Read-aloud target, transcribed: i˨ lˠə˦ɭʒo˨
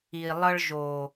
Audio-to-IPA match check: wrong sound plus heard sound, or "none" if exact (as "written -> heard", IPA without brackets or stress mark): none